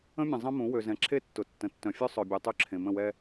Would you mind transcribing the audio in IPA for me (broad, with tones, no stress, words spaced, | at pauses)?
ə̃˦mʲə̃˨ zˤə̃˦mũ˨˦ wø˨zɛ̃˨ ǁʰe˦tːʊ˨ tːə̃˨tːœ̃˨ fʲœ˦ sˤœ˨bʲœ˨ tˤø˦ǁʰẽ˨ mə̃˦˨wɛ˦